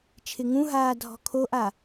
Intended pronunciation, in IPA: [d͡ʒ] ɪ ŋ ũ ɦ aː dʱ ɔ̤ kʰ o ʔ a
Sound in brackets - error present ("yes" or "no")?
yes